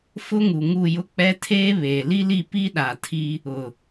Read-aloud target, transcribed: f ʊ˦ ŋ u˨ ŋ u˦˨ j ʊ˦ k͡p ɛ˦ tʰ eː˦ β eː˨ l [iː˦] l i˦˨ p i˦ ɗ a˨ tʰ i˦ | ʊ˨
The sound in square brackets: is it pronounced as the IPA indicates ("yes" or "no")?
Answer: no